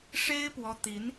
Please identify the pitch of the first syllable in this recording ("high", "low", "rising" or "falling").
high